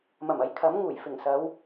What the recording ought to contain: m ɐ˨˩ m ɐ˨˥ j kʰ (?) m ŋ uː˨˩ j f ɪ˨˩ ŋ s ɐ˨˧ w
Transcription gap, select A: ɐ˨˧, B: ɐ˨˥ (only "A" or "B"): B